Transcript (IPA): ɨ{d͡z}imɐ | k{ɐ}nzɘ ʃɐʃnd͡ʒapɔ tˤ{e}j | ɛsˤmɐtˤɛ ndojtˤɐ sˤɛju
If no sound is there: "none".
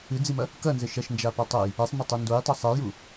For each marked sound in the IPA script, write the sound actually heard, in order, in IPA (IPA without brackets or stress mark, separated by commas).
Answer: d͡z, ɐ, ɘ